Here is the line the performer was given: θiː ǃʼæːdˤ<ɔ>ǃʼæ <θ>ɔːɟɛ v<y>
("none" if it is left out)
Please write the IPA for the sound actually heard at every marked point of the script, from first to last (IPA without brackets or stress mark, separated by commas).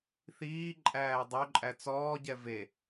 ɵ, t͡s, e